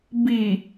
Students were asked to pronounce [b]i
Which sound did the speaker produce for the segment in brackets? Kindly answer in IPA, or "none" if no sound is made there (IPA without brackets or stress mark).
b